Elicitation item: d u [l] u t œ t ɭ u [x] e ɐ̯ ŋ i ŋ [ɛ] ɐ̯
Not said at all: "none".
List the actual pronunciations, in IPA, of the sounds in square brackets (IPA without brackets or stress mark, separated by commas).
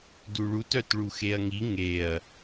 ɭ, x, e